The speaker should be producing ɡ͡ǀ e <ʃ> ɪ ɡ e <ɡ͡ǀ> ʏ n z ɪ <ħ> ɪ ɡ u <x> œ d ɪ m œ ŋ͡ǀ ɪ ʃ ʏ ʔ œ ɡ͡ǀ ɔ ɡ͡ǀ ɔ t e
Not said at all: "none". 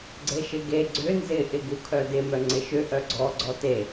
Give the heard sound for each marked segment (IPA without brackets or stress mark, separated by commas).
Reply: ʃ, ɡ͡ǀ, ʔ, kʰ